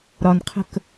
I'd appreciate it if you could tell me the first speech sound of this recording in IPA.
ɾ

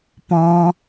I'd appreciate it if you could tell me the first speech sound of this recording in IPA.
p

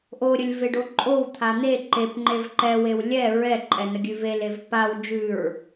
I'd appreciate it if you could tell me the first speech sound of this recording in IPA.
ʔ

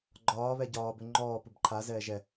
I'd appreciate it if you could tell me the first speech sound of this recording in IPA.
ɡ͡ǃ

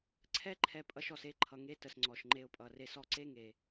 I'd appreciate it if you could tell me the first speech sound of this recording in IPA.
ǀʰ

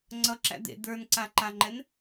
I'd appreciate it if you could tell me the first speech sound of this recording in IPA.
ŋ͡ǀ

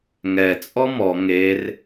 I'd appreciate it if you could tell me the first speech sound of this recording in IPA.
ŋ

